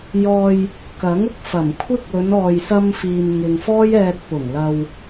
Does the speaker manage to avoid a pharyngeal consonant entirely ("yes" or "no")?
yes